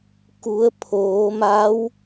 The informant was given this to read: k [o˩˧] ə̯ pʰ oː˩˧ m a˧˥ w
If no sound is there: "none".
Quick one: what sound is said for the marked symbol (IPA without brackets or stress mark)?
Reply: u˩˧